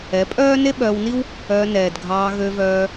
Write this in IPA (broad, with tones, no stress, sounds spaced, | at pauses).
ɛ˨˦ pʼ œː˦ n e˦ ɓ œː˧ w n i˦ w | œː˧ n ɛː˨ d ɡʱ ɑː˧ ɣ ø˧ v œː˧